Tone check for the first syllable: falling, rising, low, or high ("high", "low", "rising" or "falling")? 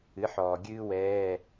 rising